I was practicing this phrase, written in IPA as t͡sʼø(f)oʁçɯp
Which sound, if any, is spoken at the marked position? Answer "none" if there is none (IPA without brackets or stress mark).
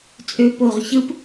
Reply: p